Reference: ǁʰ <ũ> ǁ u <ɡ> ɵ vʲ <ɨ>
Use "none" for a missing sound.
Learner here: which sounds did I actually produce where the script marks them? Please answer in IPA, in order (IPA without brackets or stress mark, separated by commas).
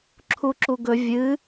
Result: u, ɡ, ɨ